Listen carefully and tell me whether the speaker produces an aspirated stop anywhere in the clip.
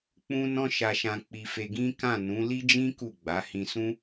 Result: no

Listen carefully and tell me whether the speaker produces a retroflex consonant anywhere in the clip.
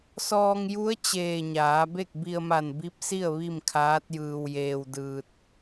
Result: no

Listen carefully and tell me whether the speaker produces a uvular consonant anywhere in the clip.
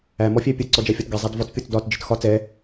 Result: no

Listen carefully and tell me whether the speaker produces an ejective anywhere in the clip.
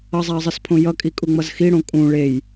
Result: yes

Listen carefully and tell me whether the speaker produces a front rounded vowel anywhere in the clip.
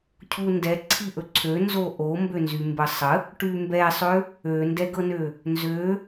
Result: yes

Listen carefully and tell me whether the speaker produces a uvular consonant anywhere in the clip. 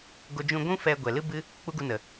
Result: no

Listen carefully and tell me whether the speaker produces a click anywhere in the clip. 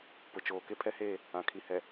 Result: no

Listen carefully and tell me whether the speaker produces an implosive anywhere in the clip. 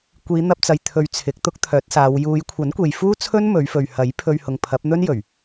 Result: no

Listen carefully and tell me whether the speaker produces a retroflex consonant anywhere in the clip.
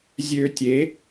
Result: no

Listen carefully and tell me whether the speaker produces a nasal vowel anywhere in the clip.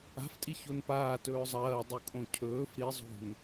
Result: yes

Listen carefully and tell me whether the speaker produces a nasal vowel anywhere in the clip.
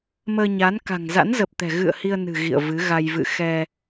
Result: no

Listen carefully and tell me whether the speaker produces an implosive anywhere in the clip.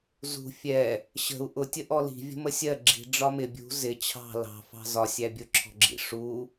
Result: no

